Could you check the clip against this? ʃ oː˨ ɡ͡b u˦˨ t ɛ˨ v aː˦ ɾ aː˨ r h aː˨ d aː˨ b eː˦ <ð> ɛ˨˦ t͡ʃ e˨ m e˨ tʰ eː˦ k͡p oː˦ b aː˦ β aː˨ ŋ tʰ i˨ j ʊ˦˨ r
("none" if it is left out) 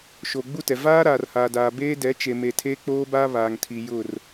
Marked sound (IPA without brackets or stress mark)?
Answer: d